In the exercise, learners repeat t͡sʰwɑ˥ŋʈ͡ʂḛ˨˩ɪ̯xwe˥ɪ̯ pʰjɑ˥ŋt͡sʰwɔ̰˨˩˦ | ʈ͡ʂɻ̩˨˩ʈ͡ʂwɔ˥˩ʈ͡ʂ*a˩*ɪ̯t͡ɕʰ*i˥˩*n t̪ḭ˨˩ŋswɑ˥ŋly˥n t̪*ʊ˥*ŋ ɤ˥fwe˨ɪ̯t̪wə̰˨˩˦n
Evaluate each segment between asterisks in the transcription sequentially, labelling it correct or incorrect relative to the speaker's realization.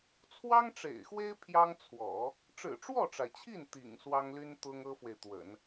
correct, correct, correct

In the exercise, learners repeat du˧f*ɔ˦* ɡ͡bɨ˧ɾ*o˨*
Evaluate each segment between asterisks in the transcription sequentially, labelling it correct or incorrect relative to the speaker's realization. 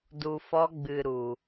correct, incorrect

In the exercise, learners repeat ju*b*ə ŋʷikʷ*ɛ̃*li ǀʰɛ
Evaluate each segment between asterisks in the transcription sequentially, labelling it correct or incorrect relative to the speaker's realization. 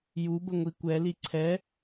correct, incorrect

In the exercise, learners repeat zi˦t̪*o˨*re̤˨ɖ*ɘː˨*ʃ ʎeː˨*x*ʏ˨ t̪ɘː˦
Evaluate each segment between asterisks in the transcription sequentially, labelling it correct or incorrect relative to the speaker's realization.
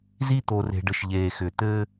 correct, incorrect, correct

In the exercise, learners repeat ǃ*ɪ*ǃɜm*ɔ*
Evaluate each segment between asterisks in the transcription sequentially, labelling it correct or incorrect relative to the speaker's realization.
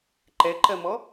incorrect, correct

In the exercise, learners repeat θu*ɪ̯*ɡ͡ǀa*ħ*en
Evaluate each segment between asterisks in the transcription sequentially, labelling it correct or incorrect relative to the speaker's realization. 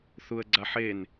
incorrect, correct

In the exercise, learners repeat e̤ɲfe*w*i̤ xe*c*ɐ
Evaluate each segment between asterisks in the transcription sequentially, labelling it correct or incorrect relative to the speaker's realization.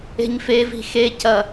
incorrect, correct

